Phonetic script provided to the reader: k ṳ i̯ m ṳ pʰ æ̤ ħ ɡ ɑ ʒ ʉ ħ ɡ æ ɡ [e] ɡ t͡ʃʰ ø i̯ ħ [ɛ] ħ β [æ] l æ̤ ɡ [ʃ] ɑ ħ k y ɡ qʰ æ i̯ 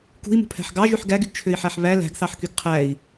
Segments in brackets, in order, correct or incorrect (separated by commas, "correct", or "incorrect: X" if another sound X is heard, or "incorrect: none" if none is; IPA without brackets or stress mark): incorrect: y, incorrect: æ, correct, incorrect: θ